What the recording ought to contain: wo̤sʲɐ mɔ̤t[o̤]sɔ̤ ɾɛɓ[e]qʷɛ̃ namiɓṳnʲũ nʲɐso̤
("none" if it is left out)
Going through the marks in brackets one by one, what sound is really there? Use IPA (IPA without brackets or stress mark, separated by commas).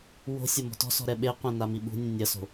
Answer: ɔ̤, e